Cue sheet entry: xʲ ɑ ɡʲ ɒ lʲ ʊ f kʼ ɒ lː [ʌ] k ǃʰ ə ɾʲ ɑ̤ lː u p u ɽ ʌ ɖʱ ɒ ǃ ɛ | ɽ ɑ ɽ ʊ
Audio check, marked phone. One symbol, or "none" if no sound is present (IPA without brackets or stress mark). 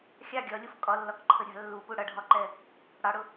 ɒ